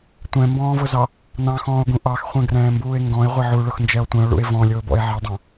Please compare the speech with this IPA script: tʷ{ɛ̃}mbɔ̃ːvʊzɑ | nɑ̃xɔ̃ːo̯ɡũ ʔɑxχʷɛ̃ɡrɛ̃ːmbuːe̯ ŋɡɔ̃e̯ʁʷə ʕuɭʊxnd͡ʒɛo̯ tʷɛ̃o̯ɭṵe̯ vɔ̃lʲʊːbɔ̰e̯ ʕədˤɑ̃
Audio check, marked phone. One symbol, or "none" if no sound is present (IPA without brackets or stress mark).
ɛ̃